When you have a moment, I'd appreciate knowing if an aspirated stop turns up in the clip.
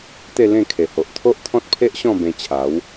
yes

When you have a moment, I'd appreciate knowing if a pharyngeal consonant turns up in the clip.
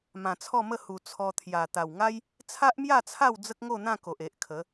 no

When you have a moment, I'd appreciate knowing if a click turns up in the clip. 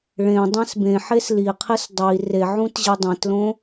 no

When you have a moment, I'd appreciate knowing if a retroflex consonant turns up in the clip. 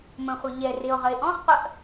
no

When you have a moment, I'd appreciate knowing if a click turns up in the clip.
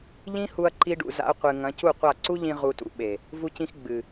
yes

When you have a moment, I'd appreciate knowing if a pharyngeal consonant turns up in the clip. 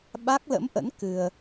no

